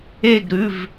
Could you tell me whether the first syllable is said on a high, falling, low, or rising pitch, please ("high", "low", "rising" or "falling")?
falling